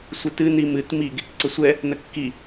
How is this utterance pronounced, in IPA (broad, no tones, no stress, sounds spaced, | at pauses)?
sʷ ɨ t ɨ n i m ɨ t m i ɡ | ǀ ə sʷ ɛ | n ə kː i